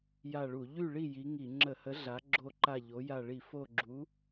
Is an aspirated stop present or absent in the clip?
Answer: absent